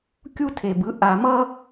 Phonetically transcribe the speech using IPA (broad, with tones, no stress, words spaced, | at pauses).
kʲu˦tʰe˨bɯ˨˦ ʔa˨mʌ˦